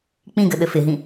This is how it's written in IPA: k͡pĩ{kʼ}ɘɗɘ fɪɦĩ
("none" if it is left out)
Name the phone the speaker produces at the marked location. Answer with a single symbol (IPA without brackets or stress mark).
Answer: ɡ